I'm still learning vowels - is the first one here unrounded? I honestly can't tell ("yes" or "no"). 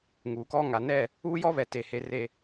no